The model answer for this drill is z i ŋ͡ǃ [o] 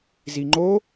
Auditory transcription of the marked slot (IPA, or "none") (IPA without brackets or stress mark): o